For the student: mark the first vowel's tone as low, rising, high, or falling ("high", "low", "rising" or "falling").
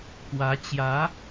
rising